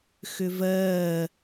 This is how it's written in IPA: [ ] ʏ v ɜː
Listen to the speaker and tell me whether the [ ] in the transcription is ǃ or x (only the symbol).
x